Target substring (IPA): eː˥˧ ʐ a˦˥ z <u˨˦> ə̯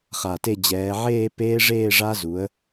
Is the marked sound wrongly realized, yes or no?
no